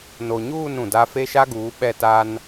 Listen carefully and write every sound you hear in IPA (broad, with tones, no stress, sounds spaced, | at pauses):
n o˨ ɲ uː˦˨ n ũ˨ d a˦ f e˦ ʃ a˦ ɡ uː˨˦ ɓ ɛ˦˨ t a˦ n